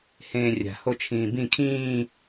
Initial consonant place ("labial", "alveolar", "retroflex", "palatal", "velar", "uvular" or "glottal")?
glottal